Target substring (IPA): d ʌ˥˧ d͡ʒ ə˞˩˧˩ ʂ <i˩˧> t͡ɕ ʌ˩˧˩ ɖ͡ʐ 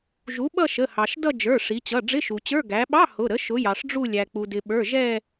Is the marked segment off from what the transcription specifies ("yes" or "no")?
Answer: no